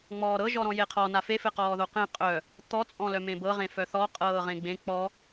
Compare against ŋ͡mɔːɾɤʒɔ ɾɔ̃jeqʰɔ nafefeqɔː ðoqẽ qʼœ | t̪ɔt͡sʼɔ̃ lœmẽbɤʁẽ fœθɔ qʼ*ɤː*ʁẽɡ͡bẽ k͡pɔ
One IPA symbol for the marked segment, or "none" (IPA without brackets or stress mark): ɤː